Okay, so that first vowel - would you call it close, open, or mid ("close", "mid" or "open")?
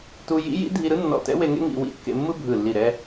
close